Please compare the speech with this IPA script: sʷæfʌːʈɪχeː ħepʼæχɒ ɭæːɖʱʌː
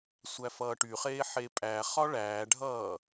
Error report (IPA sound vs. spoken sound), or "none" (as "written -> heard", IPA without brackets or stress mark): ɪ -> y